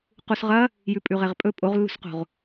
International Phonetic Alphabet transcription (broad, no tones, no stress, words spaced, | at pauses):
qusʁɐ | jʉpʼʉʁeʁpʼɵ pʼoʁlːṳsqo̤ʁ